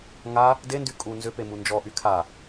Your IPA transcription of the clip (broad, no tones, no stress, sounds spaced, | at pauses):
ŋ a | d e n d y kʼ u n z ʏ p e m u n d͡ʒ ɔ ʔ y kʰ a